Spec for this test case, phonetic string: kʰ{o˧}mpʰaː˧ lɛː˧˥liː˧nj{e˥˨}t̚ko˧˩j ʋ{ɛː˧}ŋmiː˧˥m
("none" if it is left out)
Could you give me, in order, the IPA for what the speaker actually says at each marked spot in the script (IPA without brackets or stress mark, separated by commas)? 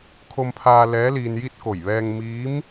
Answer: o˧, i˥˨, ɛː˧